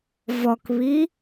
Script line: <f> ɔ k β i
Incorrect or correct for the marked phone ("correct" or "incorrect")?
incorrect